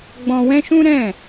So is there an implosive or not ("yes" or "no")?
no